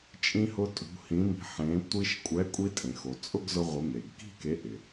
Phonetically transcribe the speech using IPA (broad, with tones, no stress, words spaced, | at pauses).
t͡ʃʼĩ˧hʊ˧ tʼṳ˩˧hĩ˩˧mi̤˩˧ħẽ˩˧ tʷi˧ʃkʷʼɛ˨˥ kʷʼi˧tʼẽ˩xo˩ t͡sʼʊ˥˧ɡzʊ˧ ʁʷɪ˨˥me˩ɡ ki̤˥˧ke˨˥ ʔɪ˩